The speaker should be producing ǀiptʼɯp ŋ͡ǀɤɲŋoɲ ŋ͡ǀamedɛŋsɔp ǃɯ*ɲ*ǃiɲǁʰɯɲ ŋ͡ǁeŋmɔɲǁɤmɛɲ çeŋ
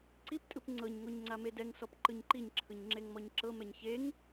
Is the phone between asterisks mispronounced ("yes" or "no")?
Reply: no